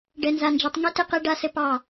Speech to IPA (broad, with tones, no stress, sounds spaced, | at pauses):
ɖ ɛ˨ n z a˨ n d͡ʒ e˨ tˤ ŋ e˦ t ɘ˦ q ɛ˦ ɖ a˦ s ɘ˦ p ɑ˦˨